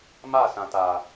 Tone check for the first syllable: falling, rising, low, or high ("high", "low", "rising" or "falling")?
falling